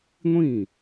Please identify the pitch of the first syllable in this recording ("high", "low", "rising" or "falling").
falling